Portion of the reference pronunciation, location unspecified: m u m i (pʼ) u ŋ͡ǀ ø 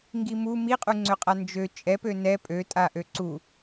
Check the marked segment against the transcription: incorrect: qʼ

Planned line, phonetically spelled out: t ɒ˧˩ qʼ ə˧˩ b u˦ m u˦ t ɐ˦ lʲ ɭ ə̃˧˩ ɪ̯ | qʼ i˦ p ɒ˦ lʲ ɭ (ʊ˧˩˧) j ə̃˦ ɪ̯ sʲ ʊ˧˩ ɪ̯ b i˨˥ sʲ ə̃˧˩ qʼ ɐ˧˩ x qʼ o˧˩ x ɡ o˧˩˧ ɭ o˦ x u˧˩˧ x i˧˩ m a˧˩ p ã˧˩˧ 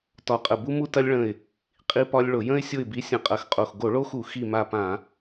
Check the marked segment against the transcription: correct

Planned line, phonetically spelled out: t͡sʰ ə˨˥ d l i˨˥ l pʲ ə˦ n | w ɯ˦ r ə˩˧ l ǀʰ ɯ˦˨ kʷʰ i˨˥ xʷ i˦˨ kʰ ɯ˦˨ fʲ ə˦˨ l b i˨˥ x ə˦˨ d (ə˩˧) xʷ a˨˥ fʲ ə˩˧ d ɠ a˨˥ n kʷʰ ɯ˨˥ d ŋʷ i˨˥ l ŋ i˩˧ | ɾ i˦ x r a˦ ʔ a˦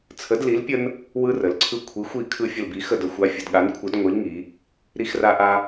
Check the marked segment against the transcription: correct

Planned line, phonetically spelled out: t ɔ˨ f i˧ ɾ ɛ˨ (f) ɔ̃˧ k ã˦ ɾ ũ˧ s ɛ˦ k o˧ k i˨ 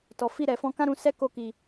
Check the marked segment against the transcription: correct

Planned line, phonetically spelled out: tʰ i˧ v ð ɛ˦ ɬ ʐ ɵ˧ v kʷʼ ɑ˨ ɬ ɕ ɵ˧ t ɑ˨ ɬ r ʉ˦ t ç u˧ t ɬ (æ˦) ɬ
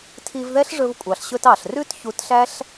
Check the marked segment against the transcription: correct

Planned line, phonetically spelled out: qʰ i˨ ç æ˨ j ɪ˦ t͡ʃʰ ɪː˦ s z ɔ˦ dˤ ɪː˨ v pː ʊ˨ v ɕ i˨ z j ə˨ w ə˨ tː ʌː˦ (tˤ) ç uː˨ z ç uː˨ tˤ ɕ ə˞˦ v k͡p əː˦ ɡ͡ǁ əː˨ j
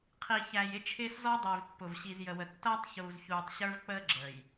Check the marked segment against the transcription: correct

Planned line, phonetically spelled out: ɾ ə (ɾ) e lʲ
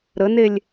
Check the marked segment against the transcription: incorrect: n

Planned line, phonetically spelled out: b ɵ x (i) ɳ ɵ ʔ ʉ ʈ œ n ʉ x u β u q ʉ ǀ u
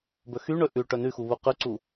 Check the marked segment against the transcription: incorrect: y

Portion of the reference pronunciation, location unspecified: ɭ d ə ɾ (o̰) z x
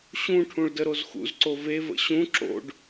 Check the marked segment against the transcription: incorrect: o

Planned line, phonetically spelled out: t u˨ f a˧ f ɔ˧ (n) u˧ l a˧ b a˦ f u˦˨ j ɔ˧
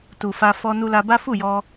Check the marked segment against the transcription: correct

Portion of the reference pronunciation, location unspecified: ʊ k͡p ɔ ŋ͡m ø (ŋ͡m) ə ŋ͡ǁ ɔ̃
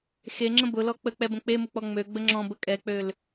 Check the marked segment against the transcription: incorrect: ɡ͡b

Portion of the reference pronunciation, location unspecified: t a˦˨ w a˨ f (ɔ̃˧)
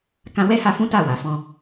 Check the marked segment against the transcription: correct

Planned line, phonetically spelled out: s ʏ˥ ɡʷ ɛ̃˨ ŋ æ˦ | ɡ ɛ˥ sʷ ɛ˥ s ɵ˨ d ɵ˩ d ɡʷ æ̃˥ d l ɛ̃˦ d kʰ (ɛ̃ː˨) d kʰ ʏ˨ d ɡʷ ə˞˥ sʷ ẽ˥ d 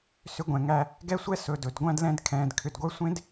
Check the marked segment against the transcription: correct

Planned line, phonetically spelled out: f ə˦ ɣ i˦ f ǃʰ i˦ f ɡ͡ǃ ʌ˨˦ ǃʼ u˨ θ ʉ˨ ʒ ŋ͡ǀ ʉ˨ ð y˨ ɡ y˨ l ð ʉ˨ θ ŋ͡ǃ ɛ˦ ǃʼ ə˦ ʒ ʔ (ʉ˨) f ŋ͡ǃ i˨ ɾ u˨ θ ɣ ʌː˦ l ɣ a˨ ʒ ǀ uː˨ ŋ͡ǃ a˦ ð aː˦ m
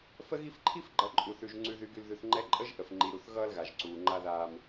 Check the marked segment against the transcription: incorrect: ə˨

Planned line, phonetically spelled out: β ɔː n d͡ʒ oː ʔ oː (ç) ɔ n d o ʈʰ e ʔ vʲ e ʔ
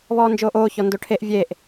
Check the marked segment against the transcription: correct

